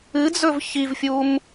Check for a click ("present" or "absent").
absent